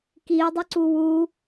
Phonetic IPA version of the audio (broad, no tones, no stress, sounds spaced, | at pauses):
k i e̯ dˤ ɯ ǀ u w u